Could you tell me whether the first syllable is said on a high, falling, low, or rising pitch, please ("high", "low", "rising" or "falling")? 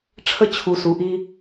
high